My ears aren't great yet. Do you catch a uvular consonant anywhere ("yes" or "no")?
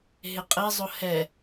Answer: yes